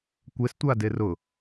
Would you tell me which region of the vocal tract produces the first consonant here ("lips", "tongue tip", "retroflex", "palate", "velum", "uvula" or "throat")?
velum